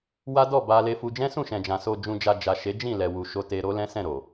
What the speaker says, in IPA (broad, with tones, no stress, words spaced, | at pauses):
wa˦dɔ˦˨ ba˧le˧fu˧ d͡ʒɛ̃˦sũ˦˨ʃɛ̃˨d͡ʒã˨ so˨d͡ʒũ˨d͡ʒa˨ d͡ʒa˨ʃe˨˦ d͡ʒĩ˦˨lɛ˨ wu˨ʃo˧ te˧ɾo˦lɛ̃˦ sɛ̃˦˨ɾo˨